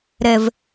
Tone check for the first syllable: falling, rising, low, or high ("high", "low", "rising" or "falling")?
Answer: low